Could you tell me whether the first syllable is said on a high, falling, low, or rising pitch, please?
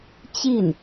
falling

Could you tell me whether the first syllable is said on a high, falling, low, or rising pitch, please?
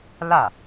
falling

